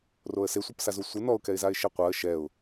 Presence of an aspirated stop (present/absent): absent